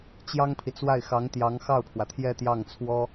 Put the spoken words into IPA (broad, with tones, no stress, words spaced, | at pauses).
t͡ɕjɑ˥ŋpʰi˨t͡swa˥˩ɪ̯ xɑ˧˥ŋ t̪jɑ˧˥ŋxɑ˥˩ʊ̯pʰwä˩ t̪ʰjɛ˥˧t̪jɑ˥˩ŋt͡sʰwɔ˥